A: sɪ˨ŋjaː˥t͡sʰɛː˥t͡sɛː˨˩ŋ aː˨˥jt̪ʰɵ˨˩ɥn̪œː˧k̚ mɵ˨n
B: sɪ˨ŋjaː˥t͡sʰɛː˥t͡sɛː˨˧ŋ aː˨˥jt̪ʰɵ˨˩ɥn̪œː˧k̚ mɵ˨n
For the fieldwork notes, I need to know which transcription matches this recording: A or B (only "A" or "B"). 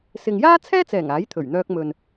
A